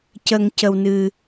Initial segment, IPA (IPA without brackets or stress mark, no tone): c